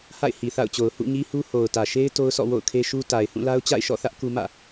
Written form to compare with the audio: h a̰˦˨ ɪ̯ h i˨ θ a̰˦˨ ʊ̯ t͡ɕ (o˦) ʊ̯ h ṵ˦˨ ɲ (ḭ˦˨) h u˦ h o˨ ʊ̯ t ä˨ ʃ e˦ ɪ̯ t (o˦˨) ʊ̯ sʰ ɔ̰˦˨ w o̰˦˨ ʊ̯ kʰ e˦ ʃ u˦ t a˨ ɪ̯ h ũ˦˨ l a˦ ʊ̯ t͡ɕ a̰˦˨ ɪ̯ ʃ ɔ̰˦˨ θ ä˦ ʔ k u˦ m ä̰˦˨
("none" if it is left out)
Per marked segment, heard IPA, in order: o˨, i˦, o˦

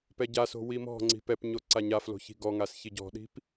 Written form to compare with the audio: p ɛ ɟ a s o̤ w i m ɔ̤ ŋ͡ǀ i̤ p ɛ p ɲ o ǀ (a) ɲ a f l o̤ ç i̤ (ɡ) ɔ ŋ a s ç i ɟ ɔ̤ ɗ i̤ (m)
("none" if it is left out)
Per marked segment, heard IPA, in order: a, ɡ, p

